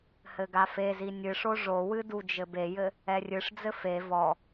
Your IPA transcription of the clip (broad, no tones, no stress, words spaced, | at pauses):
hɘɡafezi nʲɨʂo ʐowɨ dud͡ʒɘbejɘ | ɛrʲɨʂd͡zɘ fe vɔ